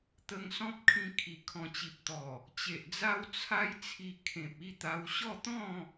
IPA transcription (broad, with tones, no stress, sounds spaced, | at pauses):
t̪ ə˧ ŋ s ɔ̃˦ p̚ kʰ ĩ˧ kʰ i˨˩ kʰ ɔ̃˨˩ t͡ɕ i˨ p̚ t̪ ɔ˨˩ | t͡ɕ e˨ ʔ d͡z a˦ w t͡sʰ a˦ j t͡sʰ i˧ kʰ ẽ˨ p̚ i˥˧ t̪ a˧ w ɕ ɔ˥˧ t̪ ɔ̃˥˧